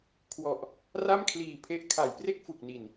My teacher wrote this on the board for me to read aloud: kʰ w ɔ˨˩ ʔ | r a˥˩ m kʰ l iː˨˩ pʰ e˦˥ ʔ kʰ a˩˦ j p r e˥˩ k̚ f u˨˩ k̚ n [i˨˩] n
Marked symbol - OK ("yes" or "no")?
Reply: yes